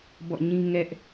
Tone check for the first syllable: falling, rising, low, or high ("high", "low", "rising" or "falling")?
falling